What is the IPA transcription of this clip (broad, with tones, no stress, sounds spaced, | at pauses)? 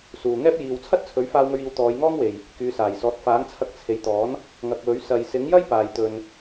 s uː˨ ŋ ɛː˥ p̚ j iː˧ w t͡sʰ ɐ˥ t̚ t͡sʰ ɵ˨˥ ɥ f aː˧ w ŋ ɵ˧ ɥ iː˨˧ w t̪ ɔː˨˧ j ŋ ɔː˥ ŋ w e˨ j | k yː˨˧ s aː˨˩ j s ɔː˨˥ t̚ f aː˨˥ ŋ t͡sʰ ɐ˧ k̚ t͡sʰ e˨˧ j t̪ ɔː˨˥ n | ŋ ɐ˨ k̚ w ɵ˨˥ ɥ s ɐ˨ j s ɪ˨˥ ŋ j ɐ˥ j p aː˨ j t̪ ɵ˧ n